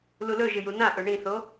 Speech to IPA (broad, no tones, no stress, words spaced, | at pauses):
lulɵʒɨ junãʔɵ ɳĩθo